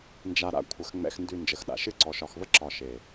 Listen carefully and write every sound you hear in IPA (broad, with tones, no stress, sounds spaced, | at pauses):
n d͡ʒ a˨ ɾ a̰˨ kʷʰ ə˨ x ŋ͡m ɛ̰˨ x n d ʉ˨ n d͡ʒ ə˨ x ɗ a̰˨ ʃ ɨ˦ ǀ ɔ˨ ʃ ɒ˨ x v ə˦ ǁ ɒ˨ ʃ e˨